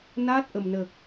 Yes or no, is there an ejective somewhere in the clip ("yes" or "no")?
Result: no